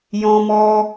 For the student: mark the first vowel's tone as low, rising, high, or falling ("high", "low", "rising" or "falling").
high